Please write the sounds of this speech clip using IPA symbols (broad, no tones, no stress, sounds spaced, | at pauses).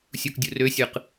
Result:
sʲ u k dʲ u r ø sʲ ɯ q